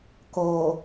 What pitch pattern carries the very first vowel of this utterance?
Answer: low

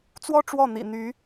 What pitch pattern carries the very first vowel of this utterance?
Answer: high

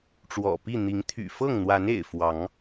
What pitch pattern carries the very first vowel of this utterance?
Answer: low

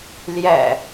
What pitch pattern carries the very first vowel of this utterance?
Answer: low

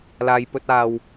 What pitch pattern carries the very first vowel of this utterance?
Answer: low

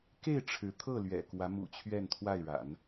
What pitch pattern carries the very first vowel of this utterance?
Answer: falling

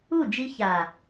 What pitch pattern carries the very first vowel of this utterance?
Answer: falling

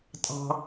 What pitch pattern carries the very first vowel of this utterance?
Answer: high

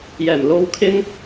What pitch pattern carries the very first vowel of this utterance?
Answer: low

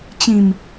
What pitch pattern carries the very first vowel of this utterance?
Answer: low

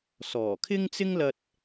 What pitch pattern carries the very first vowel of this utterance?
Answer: low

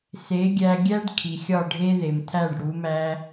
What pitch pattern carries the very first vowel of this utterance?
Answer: rising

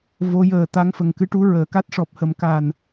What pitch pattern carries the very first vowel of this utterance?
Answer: rising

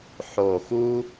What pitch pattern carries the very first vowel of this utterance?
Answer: low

